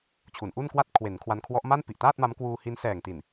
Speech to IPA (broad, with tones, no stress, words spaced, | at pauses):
t͡ɕʰu˩˦nʔu˥˩nkwa˥˩t̚ kʰwe˩˦n kʰwa˧nkʰwɔ˦˥ʔma˥˩n pi˨˩ʔtaː˥˩t̚ma˦˥mkwuː˧ hi˦˥n sɛː˨˩ŋti˨˩n